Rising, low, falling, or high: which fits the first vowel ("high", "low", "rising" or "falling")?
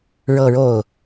falling